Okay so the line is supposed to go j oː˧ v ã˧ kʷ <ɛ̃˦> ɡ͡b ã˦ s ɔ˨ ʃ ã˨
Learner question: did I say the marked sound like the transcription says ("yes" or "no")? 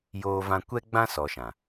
no